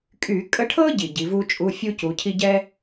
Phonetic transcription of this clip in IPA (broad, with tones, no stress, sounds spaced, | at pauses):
kʼ y˧˩˧ kʼ ə˧˥ ʈʰ ɤ˥ ɟ i˨˩ ɟ i˩˧ v u˥ t͡ʃʼ u˧˥˧ fʲ u˥ c u˩˧ cʰ i˥ ɟ ɛ˥